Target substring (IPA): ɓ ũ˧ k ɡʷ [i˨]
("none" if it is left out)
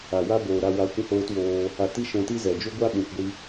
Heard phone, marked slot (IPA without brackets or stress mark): i˦